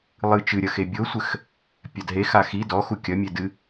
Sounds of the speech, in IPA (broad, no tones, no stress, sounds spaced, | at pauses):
lˠ ɨ t͡ʃ ɨ ɾʲ ɐ x e bʲ o sʷ ɘ x | pʲ a d ɦ e x a x i d ɔ x u kʲ ɐ mʲ e d ɨ